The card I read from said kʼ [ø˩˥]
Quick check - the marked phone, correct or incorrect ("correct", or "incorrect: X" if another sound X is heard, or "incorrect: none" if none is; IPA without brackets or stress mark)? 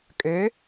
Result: correct